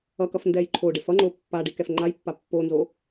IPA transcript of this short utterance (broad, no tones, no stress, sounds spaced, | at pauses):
ʌ k ʌ f n d ɛ j ǃʰ o ɖ e f ʌ ŋ͡ǃ o pː a ɖ i k ɛ f ŋ͡ǃ a j pː a pː o n z o